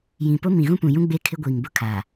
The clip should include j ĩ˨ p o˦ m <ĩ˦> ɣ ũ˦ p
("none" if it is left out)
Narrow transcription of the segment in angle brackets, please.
ĩ˨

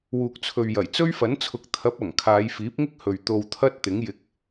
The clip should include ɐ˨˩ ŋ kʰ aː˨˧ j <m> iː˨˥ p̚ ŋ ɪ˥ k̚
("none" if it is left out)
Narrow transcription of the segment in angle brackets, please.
f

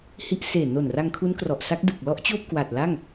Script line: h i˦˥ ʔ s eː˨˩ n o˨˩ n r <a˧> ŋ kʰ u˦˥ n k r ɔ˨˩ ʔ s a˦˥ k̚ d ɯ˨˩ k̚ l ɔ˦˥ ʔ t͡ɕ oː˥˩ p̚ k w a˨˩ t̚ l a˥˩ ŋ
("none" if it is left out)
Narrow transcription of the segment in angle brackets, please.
a˧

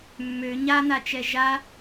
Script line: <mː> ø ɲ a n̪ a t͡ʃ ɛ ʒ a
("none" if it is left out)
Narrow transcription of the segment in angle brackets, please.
mː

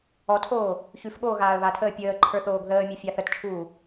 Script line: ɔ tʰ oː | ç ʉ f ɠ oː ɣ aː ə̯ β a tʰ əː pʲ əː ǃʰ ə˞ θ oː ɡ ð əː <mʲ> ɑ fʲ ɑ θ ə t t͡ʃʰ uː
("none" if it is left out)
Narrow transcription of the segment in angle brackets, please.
mʲ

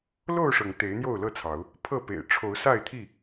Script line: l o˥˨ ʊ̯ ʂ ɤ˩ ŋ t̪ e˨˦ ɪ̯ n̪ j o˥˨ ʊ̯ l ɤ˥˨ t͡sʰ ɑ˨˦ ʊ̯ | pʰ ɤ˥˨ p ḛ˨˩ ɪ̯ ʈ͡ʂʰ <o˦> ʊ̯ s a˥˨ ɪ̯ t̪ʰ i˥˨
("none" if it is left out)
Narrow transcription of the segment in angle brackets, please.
o˨˦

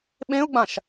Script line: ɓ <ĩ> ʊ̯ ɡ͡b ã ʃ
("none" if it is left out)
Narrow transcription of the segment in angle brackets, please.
ẽ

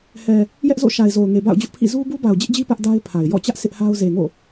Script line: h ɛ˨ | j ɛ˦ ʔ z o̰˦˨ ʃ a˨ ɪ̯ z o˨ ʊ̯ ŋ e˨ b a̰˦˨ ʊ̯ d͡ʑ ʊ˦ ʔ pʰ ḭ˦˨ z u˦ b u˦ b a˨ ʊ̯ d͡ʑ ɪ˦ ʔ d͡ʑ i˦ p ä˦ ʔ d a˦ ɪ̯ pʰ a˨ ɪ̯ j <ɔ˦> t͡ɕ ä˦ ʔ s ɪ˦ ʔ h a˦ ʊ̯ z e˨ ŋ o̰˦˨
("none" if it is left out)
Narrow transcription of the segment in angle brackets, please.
ɔ̰˦˨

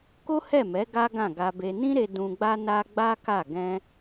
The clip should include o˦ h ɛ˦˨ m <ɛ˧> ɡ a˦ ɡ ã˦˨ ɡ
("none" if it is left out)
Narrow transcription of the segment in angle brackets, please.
ɛ˨˦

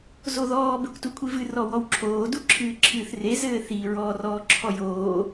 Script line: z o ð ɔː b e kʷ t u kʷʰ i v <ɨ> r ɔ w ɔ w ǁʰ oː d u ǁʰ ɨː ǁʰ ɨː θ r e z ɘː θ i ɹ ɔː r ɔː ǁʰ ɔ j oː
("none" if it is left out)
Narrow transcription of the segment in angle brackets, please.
ɨ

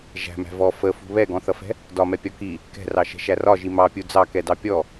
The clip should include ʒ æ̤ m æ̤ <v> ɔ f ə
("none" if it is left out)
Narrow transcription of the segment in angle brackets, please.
v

